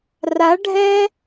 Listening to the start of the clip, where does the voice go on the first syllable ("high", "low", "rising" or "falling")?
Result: rising